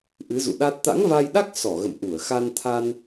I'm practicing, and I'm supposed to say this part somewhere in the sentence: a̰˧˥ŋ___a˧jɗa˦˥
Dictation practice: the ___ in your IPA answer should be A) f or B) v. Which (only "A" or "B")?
B